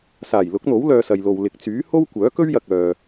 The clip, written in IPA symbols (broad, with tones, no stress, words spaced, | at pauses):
saː˨˩jlʊ˨˥k̚n̪o˨˥w lœː˧sɐ˨jlo˨w lɪ˨k̚t͡syː˨˥ ho˥wkʷœː˨˥kɵ˥ɥjɐ˨k̚ œː˨